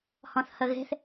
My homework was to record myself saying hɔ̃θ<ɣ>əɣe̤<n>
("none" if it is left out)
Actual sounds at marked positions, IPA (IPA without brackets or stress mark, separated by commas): h, θ